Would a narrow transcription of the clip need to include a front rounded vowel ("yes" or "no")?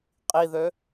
yes